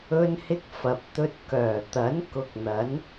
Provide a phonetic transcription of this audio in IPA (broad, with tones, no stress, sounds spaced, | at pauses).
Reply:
ɵ˧ n h ɪ˧ k̚ f ɐ˨ p̚ t̪ ɵ˧ t̚ k œː˨˩ t̪ ɐ˨˥ n k ʊ˧ k̚ n̪ ɐ˨˥ n